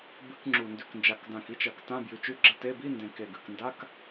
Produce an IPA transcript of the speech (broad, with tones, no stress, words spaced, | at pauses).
bɨ˧˥˧kŋ͡ǁu˨˩ndʉ˨˩k nd͡ʒa˨˩kdã˨˩ki˧˥˧t͡ʃɐ˨˩k tã˧˥˧bjʉ˨˩t͡ʃʉ˧˥˧ɡ͡ǁɐ˧˥˧ te˧˥˧ bi˧˥˧ndẽ˨˩ ke˨˩ɡɨ˨˩knda˧˥˧k